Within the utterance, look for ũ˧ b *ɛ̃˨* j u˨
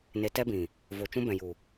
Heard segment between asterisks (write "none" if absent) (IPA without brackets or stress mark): ɛ̃˨